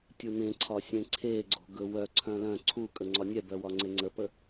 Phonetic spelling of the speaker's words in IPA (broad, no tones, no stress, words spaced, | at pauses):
tʲunẽǀʰɒ sʲẽǀʰeɡ͡ǀo̤ ɡɵwœǀʰœ̃ lœ̃ ǀʰu kʼəŋ͡ǀɒnʲɛbœ wɒŋ͡ǀeŋ͡ǀəpə